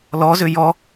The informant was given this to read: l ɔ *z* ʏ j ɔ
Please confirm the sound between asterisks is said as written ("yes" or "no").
yes